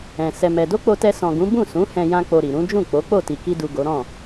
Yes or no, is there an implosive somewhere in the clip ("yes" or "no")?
no